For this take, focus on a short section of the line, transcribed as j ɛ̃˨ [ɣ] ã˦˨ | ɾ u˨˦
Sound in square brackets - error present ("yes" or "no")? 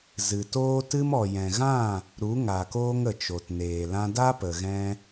no